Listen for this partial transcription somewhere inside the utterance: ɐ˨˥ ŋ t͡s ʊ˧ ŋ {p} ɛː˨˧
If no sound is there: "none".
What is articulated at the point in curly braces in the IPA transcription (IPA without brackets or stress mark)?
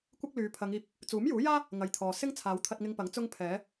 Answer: pʰ